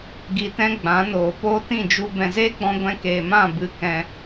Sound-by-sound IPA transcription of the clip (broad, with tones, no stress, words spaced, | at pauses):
ɡi˧tɛ̃˦ɡ͡bã˨˦noː˨ poː˦tĩ˦˨d͡ʒu˧ bɛ̃˨zeː˦ɡ͡bɔ̃˧ ɡʷɛ̃˧keː˨mã˦˨ bɨ˧ kɛ̃˧